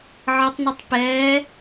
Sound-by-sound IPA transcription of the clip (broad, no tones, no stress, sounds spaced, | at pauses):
ʕ ʌ tˤ n i tˤ p ɛː